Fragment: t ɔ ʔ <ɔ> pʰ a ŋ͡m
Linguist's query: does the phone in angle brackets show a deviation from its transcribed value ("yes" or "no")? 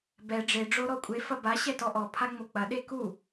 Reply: no